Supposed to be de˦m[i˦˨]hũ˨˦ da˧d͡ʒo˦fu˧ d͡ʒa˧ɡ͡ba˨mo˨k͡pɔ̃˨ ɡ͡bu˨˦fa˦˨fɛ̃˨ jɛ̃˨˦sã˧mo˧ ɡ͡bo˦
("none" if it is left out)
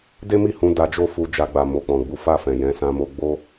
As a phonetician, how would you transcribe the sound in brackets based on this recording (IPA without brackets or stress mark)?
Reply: i˦˨